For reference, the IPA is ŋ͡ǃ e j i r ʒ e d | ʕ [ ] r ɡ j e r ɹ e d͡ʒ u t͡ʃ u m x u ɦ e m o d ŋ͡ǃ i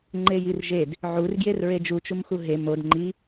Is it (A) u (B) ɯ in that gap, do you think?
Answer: A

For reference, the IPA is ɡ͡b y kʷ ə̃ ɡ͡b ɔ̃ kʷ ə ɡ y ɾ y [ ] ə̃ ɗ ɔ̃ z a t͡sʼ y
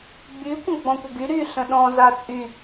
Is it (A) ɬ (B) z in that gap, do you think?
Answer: A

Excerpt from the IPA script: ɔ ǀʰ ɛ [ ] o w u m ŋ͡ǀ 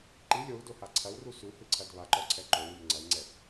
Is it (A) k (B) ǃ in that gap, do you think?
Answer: B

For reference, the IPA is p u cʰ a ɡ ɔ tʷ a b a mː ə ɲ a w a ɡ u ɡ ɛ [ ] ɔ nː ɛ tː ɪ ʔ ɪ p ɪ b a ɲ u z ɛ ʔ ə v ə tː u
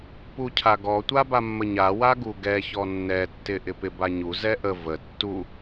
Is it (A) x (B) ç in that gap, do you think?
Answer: B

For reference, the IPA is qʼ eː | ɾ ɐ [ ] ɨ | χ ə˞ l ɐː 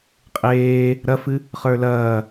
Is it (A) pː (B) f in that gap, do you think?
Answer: B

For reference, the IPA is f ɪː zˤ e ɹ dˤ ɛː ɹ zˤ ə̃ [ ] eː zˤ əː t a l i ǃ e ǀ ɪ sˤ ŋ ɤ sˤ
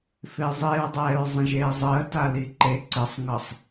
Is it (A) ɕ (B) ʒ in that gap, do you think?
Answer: B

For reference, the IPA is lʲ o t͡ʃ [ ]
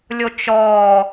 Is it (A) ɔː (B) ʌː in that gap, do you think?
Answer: A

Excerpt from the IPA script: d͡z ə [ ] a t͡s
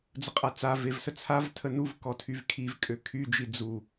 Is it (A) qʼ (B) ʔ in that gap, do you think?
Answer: A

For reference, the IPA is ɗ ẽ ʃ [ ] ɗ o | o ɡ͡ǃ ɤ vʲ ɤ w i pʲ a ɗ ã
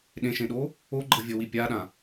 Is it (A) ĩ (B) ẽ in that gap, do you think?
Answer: B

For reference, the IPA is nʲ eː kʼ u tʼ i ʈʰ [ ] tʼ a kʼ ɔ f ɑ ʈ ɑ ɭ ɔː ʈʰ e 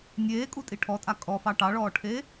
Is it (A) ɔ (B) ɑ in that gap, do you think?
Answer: A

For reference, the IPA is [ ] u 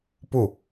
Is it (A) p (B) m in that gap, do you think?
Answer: A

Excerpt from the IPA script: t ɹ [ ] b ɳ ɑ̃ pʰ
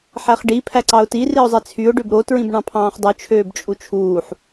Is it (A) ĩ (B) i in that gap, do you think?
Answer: A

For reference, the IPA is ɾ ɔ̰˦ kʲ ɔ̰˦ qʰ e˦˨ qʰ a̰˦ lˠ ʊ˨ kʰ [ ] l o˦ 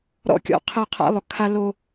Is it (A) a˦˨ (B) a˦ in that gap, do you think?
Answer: B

